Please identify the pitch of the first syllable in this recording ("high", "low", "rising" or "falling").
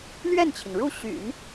falling